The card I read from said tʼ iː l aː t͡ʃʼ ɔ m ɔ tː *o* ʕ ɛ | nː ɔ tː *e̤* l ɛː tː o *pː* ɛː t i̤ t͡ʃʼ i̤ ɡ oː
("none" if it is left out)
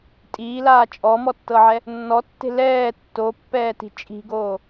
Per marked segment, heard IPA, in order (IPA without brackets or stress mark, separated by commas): ɤ, e̤, pː